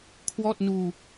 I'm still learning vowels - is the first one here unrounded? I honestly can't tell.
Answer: no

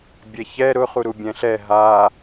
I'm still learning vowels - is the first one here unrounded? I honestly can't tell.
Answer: yes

